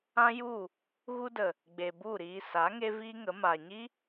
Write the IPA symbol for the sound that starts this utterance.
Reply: ã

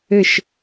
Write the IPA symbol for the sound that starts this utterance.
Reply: ɘ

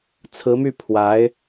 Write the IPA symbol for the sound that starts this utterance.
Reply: t͡sʰ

